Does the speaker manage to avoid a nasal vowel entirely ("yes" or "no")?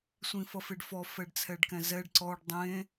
no